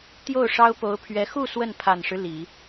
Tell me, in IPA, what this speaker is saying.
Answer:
t̪ j o˥˩ ʊ̯ ʂ ɑ˥ ʊ̯ p o˧˥ ʊ̯ pʰ ɥ ɛ˧˥ x u˥˧ s w ə˥˩ n pʰ a˨˩ n ʂ ɻ̩˦ l i˨˩˦

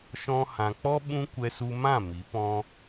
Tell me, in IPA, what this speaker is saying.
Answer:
ʃ ɔ̃˧ h ã˨ k͡p ɔ˦ ɓ ũ˦ kʷ ɛ˧ s u˧ m ã˦˨ m i˨˦ p ɔ̃˦

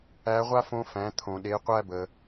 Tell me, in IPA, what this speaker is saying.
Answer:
æ˧˥ ʁʷ a˥ f õ˧˥ f æ̃˩˧ t̪ʰ õ˩ ɗ e˩˧ qʷ æ˧ b ə˩

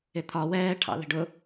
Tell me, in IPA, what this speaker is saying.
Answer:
ɪ t̪ʰ ɒ w ɛː ʈʰ ɑ̰ l ə̤ ɖ ʊ

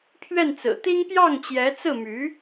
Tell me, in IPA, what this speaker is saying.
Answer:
pʰ ɥ ɛ˥˩ n t͡s ɹ̩˨˩ t̪ i˥ ŋ p j ɑ˥˩ ŋ t͡ɕ j ɛ˧˥ t͡s ɹ̩˥˩ m y˧˥

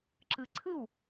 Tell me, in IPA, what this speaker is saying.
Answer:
ǁ ɯ˨ ǀʰ ɯ˥˩ w

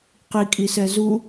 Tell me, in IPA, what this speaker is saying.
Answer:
q i kʼ i s ɛ z u

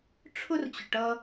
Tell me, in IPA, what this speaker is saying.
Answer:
ʈ͡ʂʰ ʊ˥ r t͡ɕ ʊ˨ ʈ ʌ˦

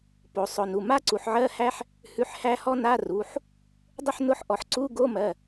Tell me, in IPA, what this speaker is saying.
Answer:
p o˩˧ sˤ ʊ˩˧˩ n u˩˧˩ m a˥˧ ǀ u˩˧ ħ ʕ ɜ˧˥˧ h æ˦˥ ħ | h ʉ˧˥˧ ħ h æ˦˥ h ɔ˦˥ n a˧˥˧ r u˩˧˩ ħ | dˤ ʊ˥˧ ħ n ʊ˧˥˧ ħ ʔ ɔ˩˧ ħ ǀ u˧˥˧ ɡ o˧˥˧ m ɜ˩˧˩

